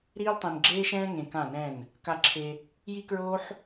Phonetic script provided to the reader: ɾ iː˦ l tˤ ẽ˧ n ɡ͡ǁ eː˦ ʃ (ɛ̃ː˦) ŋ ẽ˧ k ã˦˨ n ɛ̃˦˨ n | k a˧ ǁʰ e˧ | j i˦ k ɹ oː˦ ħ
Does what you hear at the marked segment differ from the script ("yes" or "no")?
no